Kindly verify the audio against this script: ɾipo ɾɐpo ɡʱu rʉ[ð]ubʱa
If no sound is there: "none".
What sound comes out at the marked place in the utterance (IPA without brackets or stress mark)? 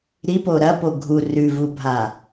v